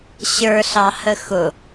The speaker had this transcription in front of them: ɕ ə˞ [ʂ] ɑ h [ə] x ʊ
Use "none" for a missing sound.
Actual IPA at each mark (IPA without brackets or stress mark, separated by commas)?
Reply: ɬ, ə